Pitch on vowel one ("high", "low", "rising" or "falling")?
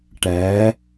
rising